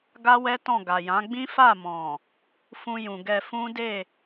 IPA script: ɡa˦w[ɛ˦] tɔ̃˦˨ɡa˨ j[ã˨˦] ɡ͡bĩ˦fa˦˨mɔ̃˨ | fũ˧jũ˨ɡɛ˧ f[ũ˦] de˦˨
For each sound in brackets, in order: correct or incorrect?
correct, correct, correct

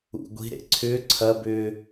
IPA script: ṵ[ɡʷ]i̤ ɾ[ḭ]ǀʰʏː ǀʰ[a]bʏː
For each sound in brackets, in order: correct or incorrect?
correct, incorrect, incorrect

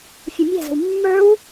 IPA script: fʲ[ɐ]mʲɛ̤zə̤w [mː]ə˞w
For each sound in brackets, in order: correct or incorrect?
correct, correct

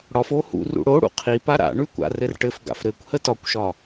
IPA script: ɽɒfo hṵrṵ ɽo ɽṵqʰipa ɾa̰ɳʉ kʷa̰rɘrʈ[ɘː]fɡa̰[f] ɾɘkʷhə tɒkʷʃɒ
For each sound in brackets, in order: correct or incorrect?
incorrect, correct

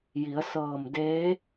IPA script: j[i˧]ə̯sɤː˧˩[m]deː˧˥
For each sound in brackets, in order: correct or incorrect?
incorrect, correct

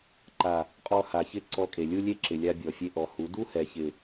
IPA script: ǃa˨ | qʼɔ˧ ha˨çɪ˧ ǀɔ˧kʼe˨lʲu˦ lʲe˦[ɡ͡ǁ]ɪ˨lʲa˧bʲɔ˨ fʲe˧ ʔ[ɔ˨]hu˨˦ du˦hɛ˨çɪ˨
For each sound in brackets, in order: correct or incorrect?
incorrect, correct

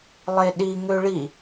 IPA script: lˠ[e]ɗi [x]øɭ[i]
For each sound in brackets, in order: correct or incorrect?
correct, incorrect, correct

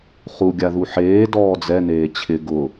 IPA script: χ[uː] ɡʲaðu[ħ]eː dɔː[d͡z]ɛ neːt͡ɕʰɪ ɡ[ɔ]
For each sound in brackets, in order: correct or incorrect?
incorrect, correct, correct, incorrect

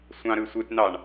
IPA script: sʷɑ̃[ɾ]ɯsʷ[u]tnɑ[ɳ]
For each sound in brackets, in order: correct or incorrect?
correct, incorrect, correct

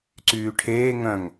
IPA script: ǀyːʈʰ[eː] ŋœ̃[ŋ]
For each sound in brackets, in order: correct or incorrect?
correct, correct

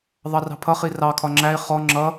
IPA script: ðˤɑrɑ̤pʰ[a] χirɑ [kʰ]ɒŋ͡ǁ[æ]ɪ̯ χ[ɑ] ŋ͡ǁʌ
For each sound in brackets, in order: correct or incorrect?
incorrect, correct, correct, incorrect

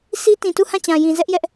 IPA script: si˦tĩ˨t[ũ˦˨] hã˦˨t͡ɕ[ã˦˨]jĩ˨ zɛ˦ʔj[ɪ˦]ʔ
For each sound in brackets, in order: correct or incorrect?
incorrect, incorrect, incorrect

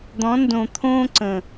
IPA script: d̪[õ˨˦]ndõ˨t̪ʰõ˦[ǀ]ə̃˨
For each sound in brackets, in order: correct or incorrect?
incorrect, correct

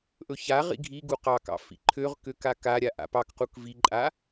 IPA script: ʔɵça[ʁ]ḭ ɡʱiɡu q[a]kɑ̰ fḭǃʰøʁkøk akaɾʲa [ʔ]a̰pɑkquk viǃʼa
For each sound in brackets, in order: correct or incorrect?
correct, incorrect, correct

